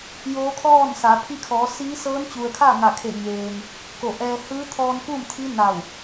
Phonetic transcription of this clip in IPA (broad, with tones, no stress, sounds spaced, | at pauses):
j oː˧˥ kʰ ɔː˥˨ n s a˩˧ pʰ i˧ kʰ ɔː˩˧ s iː˧˥ s ɤː˧˥ n t͡ɕ u˩ ə̯ kʰ a˥˨ ŋ a˧˩ kʰ e˧˩ ɲ eː˩ ŋ | k o˧˩ ʔ ɛː˧ h ɯː˧˥ t̪ʰ ɔː˧ n k uː˥˨ m t̪ʰ i˧˥ n a˧˩ w